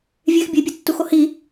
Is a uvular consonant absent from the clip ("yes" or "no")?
yes